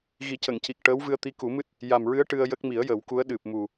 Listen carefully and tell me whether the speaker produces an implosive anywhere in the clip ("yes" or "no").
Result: yes